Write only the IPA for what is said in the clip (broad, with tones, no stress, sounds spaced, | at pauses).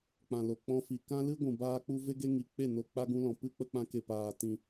k͡p ã˨ l o˨ k͡p ɔ̃˧ f i˨ k ã˦ l ɨ˦ ɡʷ ũ˨ b aː˦ k͡p u˦ v e˦ ɡ e˦ ŋ i˨ k͡p e˦˨ n o˨ k͡p a˧ ɡ ũ˧ l ɔ̃˨ p ɨ˦ k͡p ə˧ k͡p ã˧ k e˨ p aː˨ t ĩ˨